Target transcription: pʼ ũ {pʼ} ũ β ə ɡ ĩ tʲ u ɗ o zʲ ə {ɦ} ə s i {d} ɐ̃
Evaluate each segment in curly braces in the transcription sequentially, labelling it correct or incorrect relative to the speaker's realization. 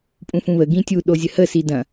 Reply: incorrect: f, incorrect: h, correct

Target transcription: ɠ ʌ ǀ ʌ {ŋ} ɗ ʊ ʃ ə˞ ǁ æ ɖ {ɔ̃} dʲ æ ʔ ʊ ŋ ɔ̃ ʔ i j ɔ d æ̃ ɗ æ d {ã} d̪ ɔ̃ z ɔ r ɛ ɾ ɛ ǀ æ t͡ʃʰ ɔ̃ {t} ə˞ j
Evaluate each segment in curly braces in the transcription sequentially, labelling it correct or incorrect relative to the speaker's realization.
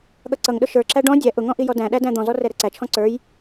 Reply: correct, correct, incorrect: æ̃, incorrect: ǀ

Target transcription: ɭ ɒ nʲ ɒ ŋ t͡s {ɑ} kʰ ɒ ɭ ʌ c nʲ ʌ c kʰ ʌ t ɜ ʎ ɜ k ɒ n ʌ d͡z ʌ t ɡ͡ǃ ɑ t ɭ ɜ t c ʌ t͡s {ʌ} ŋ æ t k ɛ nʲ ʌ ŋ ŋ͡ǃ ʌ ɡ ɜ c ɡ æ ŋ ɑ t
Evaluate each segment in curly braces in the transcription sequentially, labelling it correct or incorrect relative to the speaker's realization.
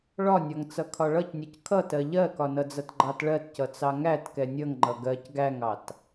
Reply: incorrect: ʌ, incorrect: ɑ

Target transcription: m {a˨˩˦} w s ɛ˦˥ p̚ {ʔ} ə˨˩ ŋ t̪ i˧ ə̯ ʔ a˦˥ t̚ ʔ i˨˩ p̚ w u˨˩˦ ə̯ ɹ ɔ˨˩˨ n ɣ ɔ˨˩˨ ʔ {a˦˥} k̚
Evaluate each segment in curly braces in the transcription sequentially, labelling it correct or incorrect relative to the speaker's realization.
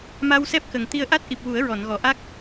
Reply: incorrect: a˧, incorrect: k, correct

